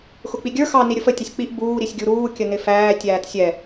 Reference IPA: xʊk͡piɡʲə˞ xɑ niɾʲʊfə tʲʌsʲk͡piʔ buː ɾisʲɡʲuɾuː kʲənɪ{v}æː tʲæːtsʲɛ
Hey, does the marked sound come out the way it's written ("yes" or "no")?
no